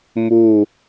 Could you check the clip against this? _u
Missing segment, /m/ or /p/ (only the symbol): m